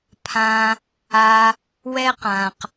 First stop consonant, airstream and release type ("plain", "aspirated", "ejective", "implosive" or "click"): aspirated